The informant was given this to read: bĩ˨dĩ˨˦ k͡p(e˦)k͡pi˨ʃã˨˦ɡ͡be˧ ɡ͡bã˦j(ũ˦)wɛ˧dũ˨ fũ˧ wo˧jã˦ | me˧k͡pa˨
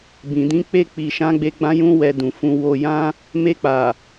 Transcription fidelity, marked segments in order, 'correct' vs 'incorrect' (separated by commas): incorrect, correct